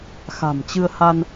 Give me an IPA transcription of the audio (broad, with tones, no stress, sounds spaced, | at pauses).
x a̤˨˩ m t͡ɕ ɨ˧ ə̯ h a˧ n